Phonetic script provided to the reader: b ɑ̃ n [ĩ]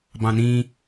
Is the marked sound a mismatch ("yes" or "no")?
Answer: no